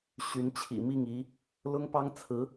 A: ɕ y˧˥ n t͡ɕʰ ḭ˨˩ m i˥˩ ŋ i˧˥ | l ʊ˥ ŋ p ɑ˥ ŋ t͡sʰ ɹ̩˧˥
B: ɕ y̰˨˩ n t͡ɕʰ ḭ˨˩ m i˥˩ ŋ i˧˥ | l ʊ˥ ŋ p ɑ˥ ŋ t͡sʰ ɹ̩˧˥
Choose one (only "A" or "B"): A